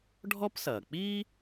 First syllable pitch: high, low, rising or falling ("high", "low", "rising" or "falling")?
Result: high